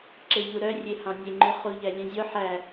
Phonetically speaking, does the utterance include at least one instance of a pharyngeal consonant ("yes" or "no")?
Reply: yes